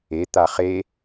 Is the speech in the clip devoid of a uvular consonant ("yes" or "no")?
no